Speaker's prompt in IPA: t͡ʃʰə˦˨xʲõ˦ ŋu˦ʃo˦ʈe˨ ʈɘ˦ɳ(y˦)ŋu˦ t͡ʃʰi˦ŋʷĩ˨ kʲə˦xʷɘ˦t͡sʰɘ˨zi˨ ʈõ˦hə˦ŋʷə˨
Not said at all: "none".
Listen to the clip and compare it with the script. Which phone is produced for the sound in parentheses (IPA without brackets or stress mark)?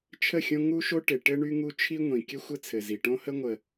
y˦